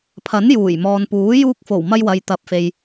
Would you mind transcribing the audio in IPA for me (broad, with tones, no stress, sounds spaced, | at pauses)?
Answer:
pʰ ɐ˨˥ n j uː˨˩ j m ɔː˨ n p uː˨˥ j uː˧ k̚ f o˨˩ w m ɐ˧ j w ɐ˨ j t̪ ɐ˨ p̚ f e˨ j